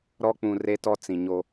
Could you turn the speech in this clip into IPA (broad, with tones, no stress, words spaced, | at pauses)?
ɾɔ˦k͡pũ˨ re˦tɔ˦ t͡sĩ˨ɲo˦